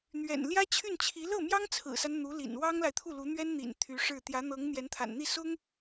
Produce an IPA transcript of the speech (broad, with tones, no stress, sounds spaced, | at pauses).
n̪ ɥ ɛ̰˨˩ n l j ä˥ t͡ɕʰ y˥˩ n t͡ɕʰ i˧˥ l ɤ˥˩ m j ɑ˥ ŋ t͡sʰ ɹ̩˨˩ s a˦ n n̪ u˧˥ l ḭ˨˩ n w ɑ˥ ŋ l a˨ ɪ̯ t̪ʰ u˥˩ l u˧˥ n̪ ɥ ɛ˥ n n̪ ḭ˨˩ n t̪ʰ y˧˥ ʂ ɻ̩˥˩ t̪ j ä˧˥ n̪ ɤ˧˥ ŋ n̪ j ɛ˧˥ n t̪ʰ a̰˨˩ n n̪ i˥˩ s ʊ˥ ŋ